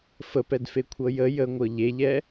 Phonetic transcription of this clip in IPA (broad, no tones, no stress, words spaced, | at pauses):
fəpɛdfekʷʰɤ jə jəŋʷɤ ʎeʎɛ